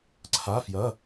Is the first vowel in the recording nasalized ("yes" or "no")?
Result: no